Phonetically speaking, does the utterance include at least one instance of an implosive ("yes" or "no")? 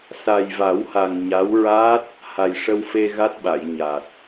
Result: yes